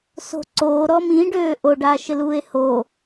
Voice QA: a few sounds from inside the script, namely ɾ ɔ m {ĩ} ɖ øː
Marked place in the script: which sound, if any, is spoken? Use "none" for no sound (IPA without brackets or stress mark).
ĩ